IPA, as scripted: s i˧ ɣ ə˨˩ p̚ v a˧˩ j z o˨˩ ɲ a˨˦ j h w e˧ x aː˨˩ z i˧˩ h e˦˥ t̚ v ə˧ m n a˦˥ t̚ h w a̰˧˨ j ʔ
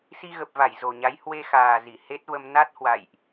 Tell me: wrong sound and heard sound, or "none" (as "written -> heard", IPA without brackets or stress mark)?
none